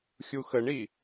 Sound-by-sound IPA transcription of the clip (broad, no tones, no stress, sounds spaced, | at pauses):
xʲ u x ə ɳ i